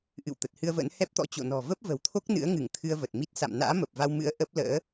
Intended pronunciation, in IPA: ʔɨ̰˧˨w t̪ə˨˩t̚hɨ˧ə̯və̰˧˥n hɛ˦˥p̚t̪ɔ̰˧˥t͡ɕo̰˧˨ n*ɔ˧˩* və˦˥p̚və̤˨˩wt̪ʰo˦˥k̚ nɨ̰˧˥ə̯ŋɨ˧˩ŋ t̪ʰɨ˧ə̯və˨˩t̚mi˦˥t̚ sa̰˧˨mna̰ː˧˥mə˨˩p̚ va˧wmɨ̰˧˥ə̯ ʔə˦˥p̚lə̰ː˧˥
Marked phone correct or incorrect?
incorrect